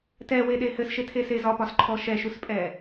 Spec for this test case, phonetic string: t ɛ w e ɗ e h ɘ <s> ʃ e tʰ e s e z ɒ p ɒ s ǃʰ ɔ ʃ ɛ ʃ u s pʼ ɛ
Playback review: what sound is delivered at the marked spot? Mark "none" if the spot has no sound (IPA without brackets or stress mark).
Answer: s